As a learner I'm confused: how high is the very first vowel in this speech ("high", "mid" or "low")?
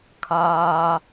low